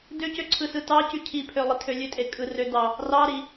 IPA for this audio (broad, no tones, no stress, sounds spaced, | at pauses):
d ø c ø ǀʰ ɯ s ɯ t ɑ c y cʰ i pʰ ø lˠ i tʰ ø lʲ ø tʼ e kʼ ɯ r ø d ɑ | r ɑ ɾ i